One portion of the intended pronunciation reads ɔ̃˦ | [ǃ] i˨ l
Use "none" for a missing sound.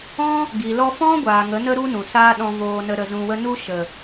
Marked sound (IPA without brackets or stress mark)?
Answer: ɡ